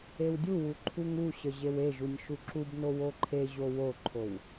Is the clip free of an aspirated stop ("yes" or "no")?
no